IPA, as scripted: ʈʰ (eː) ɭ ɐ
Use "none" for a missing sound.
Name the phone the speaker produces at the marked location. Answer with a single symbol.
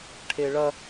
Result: e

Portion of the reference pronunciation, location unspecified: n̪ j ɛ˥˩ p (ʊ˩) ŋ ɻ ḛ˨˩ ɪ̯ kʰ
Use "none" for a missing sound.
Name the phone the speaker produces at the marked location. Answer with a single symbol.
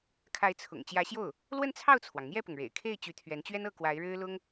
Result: ʊ˩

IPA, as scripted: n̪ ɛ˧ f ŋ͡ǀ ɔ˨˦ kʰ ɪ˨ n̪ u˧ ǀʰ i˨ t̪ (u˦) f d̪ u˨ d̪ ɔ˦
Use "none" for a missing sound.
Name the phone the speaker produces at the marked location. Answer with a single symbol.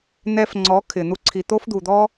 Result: o˦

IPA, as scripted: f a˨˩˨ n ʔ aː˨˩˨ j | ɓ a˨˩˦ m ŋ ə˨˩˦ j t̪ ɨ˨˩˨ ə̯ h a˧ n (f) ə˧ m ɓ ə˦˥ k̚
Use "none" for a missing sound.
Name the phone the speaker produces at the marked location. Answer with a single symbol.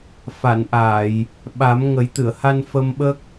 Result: f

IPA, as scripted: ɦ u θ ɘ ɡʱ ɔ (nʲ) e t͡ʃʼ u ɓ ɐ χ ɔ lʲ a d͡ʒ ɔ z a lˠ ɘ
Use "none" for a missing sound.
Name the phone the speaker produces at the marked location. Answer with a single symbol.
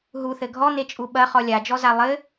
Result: n̪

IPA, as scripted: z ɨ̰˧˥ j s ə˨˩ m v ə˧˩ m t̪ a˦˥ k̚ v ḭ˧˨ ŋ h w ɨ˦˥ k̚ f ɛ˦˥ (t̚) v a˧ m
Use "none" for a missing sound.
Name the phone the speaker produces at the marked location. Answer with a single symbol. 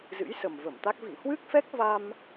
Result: k̚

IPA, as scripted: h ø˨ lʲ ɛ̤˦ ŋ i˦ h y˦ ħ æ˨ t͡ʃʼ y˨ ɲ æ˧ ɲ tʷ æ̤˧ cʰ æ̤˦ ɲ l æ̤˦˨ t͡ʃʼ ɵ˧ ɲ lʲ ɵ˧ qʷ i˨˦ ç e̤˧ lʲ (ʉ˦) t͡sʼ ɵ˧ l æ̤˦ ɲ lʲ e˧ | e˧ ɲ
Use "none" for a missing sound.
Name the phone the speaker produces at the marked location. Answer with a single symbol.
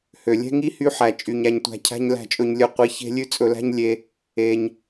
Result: ʉ˦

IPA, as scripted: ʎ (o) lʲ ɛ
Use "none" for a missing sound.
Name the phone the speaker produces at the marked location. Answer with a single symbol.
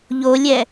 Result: o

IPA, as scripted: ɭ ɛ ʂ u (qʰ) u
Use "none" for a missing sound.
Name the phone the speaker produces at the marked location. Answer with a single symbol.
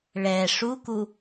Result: k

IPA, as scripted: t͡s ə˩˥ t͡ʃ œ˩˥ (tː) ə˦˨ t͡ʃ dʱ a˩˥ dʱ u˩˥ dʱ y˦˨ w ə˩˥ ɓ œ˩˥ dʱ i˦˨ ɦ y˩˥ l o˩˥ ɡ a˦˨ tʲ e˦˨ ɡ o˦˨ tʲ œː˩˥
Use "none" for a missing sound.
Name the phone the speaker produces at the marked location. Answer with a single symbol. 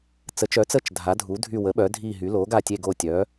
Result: t͡s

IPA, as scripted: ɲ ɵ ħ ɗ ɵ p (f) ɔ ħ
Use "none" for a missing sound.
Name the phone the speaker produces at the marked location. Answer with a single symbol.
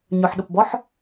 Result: b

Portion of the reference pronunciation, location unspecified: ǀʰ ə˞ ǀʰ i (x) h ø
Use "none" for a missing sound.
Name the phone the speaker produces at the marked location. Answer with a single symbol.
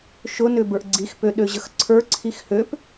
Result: x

